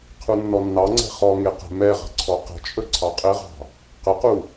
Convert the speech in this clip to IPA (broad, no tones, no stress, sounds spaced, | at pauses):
qʰ u nː ɔ nː ɑ ŋ͡ǀ ɛ̤ χ ɔ ŋ e q ɛ̤ m ɛ ʁ ə̤ ǀʰ ɔ q ə̤ t͡ʃʼ ɵ ǀʰ ɑ qʼ ɘ ʁ ɑ̤ | q ə q u